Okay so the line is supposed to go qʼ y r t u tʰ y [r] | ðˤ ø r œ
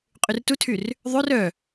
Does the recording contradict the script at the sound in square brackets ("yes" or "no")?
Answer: no